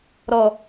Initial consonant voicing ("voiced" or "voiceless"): voiced